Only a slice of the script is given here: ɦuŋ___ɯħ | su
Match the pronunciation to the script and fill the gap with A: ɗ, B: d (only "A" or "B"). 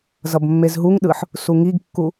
A